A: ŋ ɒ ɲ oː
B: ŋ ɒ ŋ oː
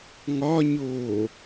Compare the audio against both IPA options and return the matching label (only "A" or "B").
A